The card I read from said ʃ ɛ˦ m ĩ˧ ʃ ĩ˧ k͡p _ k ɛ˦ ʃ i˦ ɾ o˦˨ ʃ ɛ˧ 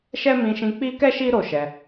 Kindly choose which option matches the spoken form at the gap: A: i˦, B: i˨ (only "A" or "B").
A